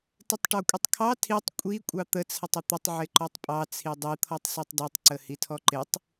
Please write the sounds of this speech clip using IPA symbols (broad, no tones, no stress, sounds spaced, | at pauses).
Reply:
t ɪ tˤ ʈ ɔ kʷʼ ɪ tˤ kʰ ɑ tʰ i tˤ kʷʼ i kʷʼ ɑ t̪ ə t͡sʰ ə tˤ ə t̪ ə tˤ ʕ ɪ ǃ ɔ tˤ pʼ ɑ t͡sʰ i dˤ i t̪ʰ ɔ tˤ s ɛ tˤ d ɔ tˤ ǀ ə h i tʰ ɔ ǃ ɪ tˤ